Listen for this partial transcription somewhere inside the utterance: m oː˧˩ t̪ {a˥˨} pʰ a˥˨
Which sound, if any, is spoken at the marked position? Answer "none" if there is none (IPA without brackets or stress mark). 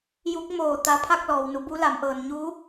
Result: a˧